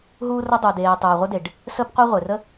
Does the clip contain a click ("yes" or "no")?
no